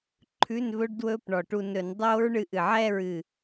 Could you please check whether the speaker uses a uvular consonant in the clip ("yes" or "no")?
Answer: no